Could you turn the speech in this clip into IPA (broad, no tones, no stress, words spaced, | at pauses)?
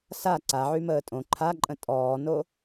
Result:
sa ǀaʕyməː tʼõ ǃʰaǃʼə̃ tʼɔːno